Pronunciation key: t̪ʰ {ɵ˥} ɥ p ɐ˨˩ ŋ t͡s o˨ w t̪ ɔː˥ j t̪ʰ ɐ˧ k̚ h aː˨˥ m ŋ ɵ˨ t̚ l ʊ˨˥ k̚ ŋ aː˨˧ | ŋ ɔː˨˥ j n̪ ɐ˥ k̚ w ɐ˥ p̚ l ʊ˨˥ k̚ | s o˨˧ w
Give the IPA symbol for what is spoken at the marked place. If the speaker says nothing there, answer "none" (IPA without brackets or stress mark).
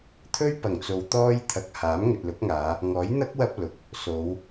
ɵ˥